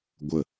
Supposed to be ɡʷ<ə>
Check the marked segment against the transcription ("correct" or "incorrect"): correct